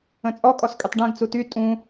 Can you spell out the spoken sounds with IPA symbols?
ə̃ t͡sʼ ɔ kʼ ɔ s kʼ y tˤ ɖ ɛ̃ ɡ t͡s u t y tʼ ũ

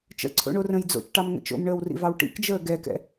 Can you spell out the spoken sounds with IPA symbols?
t͡ʃ ə̰ ǀʰ o̰ ɳ o r ə̃ j d͡z o̰ t͡ʃ ʈ ɑ m ŋ ə̰ t͡ʃ o̰ m ɳ əː w r ḭ v ɑ w ʈ ḭ k d͡ʒ əː ɡ ɛ k ɛ̰

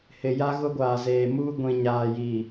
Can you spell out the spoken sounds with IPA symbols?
h ɪ˨ j a˦ ɣ ʊ˦ ɡʷ aː˨ z eː˨ m uː˦ ɡʷ ĩ˨ ɲ aː˨ j i˨

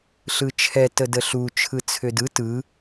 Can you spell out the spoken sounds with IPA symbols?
ɬ ɯ t͡ʃʰ ɛ t ə d ə ɬ u t͡ʃʰ ɯ t͡sʰ ʏ d ɯ t ɯ

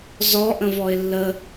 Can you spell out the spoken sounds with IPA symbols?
z ɔ ʔ ə̃ v ɔ ɪ̯ lː ə

